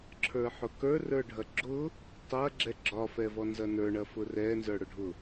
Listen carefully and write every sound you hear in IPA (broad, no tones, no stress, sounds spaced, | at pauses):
ǁʰ ə˞ ħ ʊ k ə˞ r ə˞ ɖʱ ɐ ɡ͡ǁ ʊ | tˤ ɐ ɡ͡ǁ ɛ ɡ͡ǁ ɒ f ɛ v ɔ n z ɐ n ə˞ ɳ ɐ f ʊ r ɛ n z ə˞ ɽ ʊ ɖʱ ʊ